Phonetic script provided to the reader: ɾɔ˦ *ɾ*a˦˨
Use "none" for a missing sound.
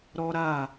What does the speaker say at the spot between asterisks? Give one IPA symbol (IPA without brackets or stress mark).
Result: ɾ